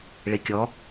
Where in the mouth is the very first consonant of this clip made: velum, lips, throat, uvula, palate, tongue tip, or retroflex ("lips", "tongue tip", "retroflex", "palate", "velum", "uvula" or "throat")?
retroflex